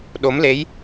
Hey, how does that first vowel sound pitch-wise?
rising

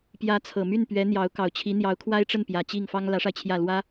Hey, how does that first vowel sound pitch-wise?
rising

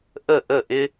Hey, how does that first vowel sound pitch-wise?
falling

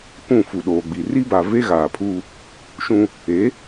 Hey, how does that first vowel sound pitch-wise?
falling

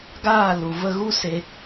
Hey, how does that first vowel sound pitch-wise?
falling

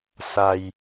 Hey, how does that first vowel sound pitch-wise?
low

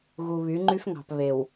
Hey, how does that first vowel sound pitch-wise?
low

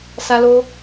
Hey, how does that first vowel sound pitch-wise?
high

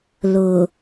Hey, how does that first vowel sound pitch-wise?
low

